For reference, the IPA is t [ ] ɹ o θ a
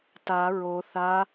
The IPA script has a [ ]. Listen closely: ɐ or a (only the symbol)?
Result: a